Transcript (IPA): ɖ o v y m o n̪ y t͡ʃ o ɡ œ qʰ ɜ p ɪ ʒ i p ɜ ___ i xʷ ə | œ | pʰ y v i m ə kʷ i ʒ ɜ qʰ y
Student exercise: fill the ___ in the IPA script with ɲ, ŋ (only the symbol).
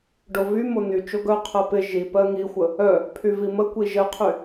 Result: ŋ